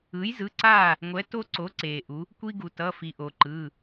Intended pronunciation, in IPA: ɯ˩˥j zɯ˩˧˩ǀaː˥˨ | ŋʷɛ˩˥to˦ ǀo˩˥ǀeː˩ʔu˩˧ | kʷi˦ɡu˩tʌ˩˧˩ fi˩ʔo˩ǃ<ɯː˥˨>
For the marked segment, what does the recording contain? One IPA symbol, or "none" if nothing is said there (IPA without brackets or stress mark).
ɯː˩˧˩